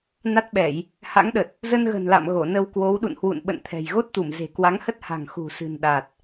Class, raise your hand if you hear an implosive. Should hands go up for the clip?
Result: yes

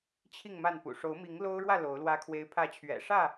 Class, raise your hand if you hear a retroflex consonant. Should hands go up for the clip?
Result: yes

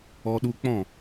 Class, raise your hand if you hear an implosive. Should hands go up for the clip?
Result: yes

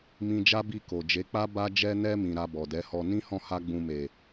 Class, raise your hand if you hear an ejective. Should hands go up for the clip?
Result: no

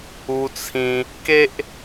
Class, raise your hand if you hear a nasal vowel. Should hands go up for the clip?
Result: yes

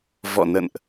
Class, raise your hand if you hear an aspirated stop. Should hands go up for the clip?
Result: no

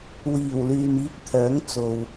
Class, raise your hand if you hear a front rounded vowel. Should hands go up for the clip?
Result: yes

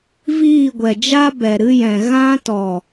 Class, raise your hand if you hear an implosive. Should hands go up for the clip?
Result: no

